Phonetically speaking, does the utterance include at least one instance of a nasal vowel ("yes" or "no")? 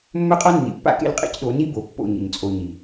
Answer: no